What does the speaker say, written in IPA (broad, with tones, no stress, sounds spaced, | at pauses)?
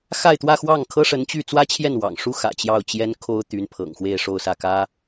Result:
x a˥˧ ɪ̯ t̪ w ä˥˧ x w ɑ˥˩ ŋ kʰ ɤ˥ ʂ ə˧˥ n t͡ɕ y˥˩ t͡s w ä˥ t͡ɕʰ j ɛ˥˩ n w ɑ̰˨˩ ŋ ʂ u˥ x ä̰˨˩ t͡ɕ j ɑ˥˩ ʊ̯ t͡ɕ j ɛ˥ n kʰ o˥ ʊ̯ t̪ y˧˥ n pʰ ɤ̰˨˩ ŋ x w e˥˧ ɪ̯ ʂ o˥˧ ʊ̯ s ä˥˩ k ä˥